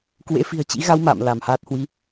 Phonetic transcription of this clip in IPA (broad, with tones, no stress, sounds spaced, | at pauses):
k w ḛ˧˥ f i̤˨˩ ə̯ t͡ɕ ḭ˧˥ ɣ a˧ w m a̰ː˧˨ m l a˧˩ m h aː˦˥ t̚ h w i˨˦